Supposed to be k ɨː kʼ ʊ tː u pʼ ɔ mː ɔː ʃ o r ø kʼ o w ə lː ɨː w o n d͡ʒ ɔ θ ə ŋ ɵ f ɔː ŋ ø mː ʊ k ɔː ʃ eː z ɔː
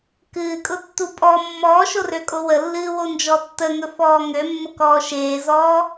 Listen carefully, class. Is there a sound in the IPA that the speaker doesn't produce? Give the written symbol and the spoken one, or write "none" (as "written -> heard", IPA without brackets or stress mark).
θ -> tː